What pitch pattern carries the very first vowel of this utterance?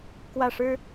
falling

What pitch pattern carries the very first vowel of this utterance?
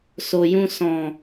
low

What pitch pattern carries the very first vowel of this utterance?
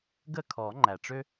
falling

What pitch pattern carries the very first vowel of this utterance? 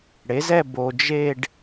rising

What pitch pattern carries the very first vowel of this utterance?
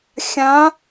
rising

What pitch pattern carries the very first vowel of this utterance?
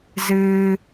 low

